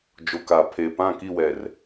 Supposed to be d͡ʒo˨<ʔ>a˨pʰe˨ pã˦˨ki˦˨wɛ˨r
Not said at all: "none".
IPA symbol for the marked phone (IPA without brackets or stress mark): k